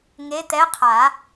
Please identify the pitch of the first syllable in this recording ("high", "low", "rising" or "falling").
rising